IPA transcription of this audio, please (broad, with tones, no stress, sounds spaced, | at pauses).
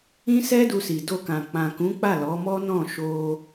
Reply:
ĩ˦ s ɛ˦ d u˧ s i˨ d o˧ k ã˨ k͡p ã˨ k ũ˨˦ k͡p a˦˨ l ɔ˨˦ m ɔ˦ n ɔ̃˦˨ ʃ o˧